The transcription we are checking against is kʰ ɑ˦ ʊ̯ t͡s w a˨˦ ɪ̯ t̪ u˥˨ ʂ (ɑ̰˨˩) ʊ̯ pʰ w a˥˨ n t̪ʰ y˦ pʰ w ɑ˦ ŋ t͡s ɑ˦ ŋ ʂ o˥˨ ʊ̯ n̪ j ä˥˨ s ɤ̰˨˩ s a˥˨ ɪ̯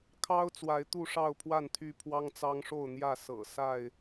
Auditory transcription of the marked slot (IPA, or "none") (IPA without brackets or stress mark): ɑ˥˨